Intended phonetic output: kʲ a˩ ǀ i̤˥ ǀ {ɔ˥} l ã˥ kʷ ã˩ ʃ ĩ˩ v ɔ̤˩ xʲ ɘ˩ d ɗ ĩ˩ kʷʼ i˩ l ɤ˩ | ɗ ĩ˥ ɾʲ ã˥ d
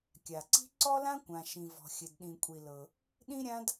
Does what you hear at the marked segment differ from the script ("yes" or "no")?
no